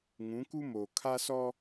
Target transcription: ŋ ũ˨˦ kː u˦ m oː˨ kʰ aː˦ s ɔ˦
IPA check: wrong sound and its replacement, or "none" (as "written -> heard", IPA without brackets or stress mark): kː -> k